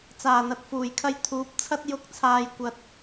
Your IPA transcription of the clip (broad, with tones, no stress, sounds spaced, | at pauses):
t͡s aː˨˩ n̪ ɐ˨ t̚ f uː˨˩ j kʰ ɐ˧ j t̪ʰ uː˨˥ p̚ t͡sʰ ɐ˥ t̚ j ʊ˨˥ k̚ t͡sʰ aː˨ j kʷ ɐ˨ t̚